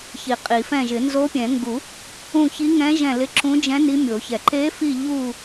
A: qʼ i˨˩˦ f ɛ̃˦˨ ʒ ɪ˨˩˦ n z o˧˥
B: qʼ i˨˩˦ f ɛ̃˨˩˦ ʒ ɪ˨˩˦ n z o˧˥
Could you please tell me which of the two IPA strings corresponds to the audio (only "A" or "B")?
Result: A